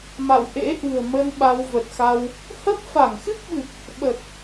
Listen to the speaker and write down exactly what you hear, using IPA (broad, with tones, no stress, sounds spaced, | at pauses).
m a̰˧˨ w ʔ ḛ˧˥ ʔ ɨ̤˨˩ ə̯ m ə˧ n ɓ a˧ w v ə˨˩ t̚ x a˧ w | h ə˦˥ p̚ f a˧˩ ŋ x ɨ˦˥ k̚ ɓ ɨ˨˩ k̚ | ɓ ə˨˩ t̚